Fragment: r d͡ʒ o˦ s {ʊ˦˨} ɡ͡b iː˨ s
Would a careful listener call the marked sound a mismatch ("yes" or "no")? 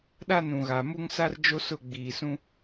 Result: no